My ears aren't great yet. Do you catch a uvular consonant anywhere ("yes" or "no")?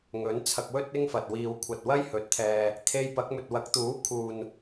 no